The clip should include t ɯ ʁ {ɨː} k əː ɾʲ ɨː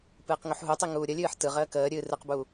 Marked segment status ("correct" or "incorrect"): incorrect